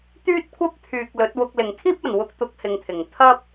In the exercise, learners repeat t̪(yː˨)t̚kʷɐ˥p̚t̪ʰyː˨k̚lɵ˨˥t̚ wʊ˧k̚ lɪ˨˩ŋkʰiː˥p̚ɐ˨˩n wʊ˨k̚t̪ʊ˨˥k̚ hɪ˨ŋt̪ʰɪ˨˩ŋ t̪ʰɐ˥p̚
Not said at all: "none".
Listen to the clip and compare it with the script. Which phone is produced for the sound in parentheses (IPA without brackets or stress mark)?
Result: yː˥